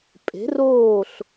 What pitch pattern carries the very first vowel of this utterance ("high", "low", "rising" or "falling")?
rising